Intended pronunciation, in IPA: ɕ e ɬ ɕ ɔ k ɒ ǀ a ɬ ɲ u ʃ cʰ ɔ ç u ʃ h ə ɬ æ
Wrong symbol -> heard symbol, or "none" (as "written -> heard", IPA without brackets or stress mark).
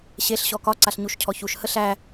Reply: none